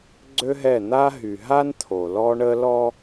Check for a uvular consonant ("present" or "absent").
absent